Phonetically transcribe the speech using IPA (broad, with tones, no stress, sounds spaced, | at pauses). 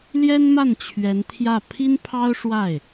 l j ɛ˥ n m a˥˩ n t͡ɕʰ ɥ ɛ˧˥ n t̪ʰ j ä˥˩ pʰ i˥ n pʰ ɑ˥ ʊ̯ ʂ w a˥˩ ɪ̯